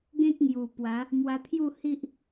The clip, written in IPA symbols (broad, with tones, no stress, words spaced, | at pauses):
ɡẽ˦k̚ŋju˨˩ pwa˨˦ | mwa˧t̪ʰju˥˧ hi˦ʔ